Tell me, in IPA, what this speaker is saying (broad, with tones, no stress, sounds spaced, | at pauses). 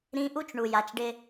ɾ ĩ˦ ʔ u˦ t͡ʃ ɳ u˨ j a˨ t͡ʃ ɖ ɪ˧